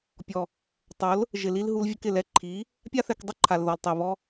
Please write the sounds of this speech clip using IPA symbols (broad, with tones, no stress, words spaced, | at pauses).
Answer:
pʲɔ˨ | tˤo˨˦l | ʒɪ˨li˧l ɦu˧lvʲʊ˧kɪ˨lɛ˧ ǃʰi˨˦ | pʲa˦θɛ˧kdˤʊ˦ǃʰa˨l ðɔ˨ltˤɛ˨ βɔ˧